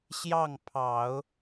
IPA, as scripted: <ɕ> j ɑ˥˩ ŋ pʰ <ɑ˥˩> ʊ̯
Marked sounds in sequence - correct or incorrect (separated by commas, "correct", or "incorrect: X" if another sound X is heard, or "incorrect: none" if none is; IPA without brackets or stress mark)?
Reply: correct, incorrect: ɑ˨˩˦